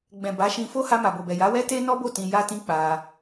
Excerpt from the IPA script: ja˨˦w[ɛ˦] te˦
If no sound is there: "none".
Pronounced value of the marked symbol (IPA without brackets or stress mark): ɛ˦